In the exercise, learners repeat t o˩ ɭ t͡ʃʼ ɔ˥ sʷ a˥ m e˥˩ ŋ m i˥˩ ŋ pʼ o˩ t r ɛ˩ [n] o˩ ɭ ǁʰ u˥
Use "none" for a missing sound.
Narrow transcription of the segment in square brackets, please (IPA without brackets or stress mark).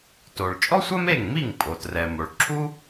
m